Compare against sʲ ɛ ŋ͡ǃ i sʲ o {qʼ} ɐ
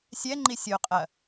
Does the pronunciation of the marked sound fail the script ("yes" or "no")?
no